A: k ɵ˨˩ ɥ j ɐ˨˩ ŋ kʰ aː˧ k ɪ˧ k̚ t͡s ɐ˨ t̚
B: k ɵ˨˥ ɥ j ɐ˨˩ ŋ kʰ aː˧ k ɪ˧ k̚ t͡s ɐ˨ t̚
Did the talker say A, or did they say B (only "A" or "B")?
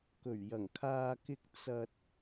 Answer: A